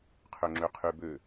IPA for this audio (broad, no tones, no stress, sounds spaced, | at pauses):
qʰ ø ŋ͡ǁ ø qʰ y b ø